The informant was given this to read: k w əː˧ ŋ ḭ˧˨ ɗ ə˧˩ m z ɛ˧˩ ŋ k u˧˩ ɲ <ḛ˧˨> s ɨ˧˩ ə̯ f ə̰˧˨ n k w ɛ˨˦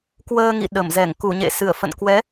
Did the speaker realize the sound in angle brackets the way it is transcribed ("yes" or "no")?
yes